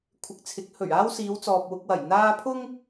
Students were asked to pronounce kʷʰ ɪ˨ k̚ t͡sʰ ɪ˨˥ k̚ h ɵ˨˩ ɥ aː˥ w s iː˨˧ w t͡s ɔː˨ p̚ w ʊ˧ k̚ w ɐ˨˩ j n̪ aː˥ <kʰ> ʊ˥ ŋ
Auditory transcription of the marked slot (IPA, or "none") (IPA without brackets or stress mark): pʰ